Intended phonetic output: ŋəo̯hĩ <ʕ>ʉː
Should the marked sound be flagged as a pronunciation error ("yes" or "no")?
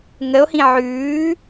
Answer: no